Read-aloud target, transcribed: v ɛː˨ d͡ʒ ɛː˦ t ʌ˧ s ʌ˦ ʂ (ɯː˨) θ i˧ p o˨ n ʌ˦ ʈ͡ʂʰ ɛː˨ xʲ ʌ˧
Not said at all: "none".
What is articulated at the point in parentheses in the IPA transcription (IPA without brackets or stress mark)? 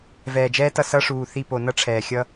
uː˨